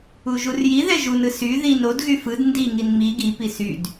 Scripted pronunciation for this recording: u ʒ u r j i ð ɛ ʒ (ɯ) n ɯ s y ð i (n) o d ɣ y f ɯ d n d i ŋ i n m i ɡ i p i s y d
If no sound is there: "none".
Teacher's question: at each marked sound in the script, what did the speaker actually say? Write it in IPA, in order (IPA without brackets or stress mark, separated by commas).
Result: u, n